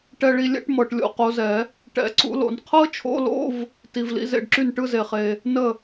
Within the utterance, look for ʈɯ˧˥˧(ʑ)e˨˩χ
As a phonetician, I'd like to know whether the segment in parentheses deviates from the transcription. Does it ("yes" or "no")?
yes